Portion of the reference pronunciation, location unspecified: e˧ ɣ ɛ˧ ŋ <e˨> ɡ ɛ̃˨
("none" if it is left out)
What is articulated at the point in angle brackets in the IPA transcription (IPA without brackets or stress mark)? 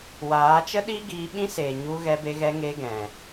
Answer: e˧